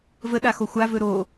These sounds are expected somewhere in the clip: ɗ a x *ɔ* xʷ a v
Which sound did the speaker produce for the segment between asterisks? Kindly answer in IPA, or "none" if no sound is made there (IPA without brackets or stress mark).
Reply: o